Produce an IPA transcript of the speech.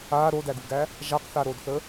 aː ɾ o d æ ɡ u ɡ æ | ʒ a q θ a ɾ o d θ ə

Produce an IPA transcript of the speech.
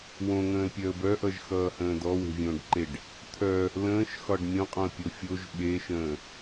w õ ŋ ə̃ː l pʲ œ ə̯ b œ ʔ ʌ ʒ x ʌː h ə̃ː d ɔ w e̤ vʲ õː ɖ ǃ e ɖ | t̪ʰ œ | l ə̃ː ʃ x ɒ ɖ mʲ õ qʼ õ ə̯ pʲ o fʲ o ʒ ɓ e ʃ ə̃ː

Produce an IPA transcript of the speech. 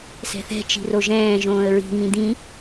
s ɛ̤ θ ɛ̤ t͡ʃ i̤ r o ʒ ɛ̃ː ʒ õː ə̯ ɹ i̤ ŋ ĩ d̪ ĩ

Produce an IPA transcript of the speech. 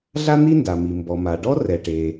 ɮ a˥ n̪ i˥ n d a˩ m i˩ m b ɔ˩ m a˩ ɖ ɔ˥ r ɛ˩ ʈ e˩

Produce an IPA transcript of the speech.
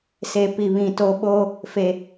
s e˨ p i˨ β ĩ˨ t o˨ ɓ o˦ | f e˨

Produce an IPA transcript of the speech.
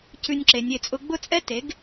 c ʉ˧ nʲ ǁ e˨ nʲ e˧ t͡sʼ ʊ˦ ɡ͡b ʊ˦˨ t͡sʼ ɛ˦ t e˨˦ ɡ

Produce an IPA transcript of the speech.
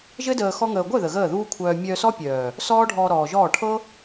ʒ ɘ˦ d əː˧ x ɔ˦ ŋ əː˧ ɡʷ œ˦˨ ð ə˨ ɣ əː˦˨ ð uː˦ kʷʰ œː˧ mʲ œ˧ s ɔ˦ pʲ œː˨ | s ɔː˦ ɖʱ ɔː˧ ɾ ɔː˨ ʒ ɔː˦˨ ʈʰ ɤ˦

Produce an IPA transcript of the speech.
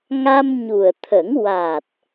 ŋ a˧ m ɲ u˨˩ ə̯ t̪ʰ ə˨˩˦ ŋ w a˨˩ t̚

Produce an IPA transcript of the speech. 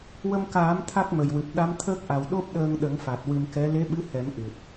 w ə˧ m k aː˨˩˦ m t̪ʰ a˦˥ k̚ m ə˨˩ j w ɨ˨˩ p̚ ɗ a˧˥ m t̪ʰ əː˦˥ k̚ ʔ a˨˩ w ɗ o˦˥ p̚ ɗ əː˧ ŋ ɗ ə˨˩˦ ŋ f a˨˩ t̚ w ɨ˧ m k ɛ˧˥ l e˧˥ ɓ ɨ˧˥ h ɛ˨˩˦ m ʔ ɨ˨˩ t̚

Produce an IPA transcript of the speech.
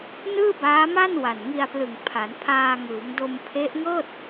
n ɯː˥˩ b aː˦˥ m a˥˩ n w a˨˩ n ŋ i˧ a̯ p l ɯ˨˩ ŋ pʰ a˩˦ n pʰ aː˧ ŋ ɯː˩˦ ŋ d o˧ m pʰ e˦˥ ʔ ŋ ɤː˥˩ t̚

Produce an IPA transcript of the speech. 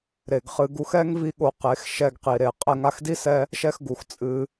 ɾ e˨ ɡ χ ɨ˧ ɡ u˦ x ɛ˦ ŋ v i˦ ɠ o˧ q e˨˦ x ʃ ɛ˧ ɡ q i˨ ɾ e˨ qʼ ɛ˧ ŋ a˦ x d i˦ s ɛ˦ | ʃ ɛ˦ x ɡ u˨ x t͡sʼ ɨ˧

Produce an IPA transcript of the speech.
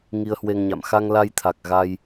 ŋ i˧ ə̯ h w e˧ ŋ ɲ a̰˧˨ m x a˧ ŋ l a˧ j t̪ʰ a˨˩ k̚ ɣ a˧ j

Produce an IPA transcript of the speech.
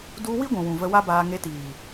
d u˧ w i˦ ɡʷ ũ˨ w ũ˨ v ə˧ w a˦ b aː˧ ŋ e˧ t iː˨

